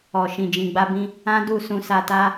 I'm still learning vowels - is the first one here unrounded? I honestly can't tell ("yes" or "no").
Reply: no